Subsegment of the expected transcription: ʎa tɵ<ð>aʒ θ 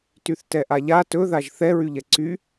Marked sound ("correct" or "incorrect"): correct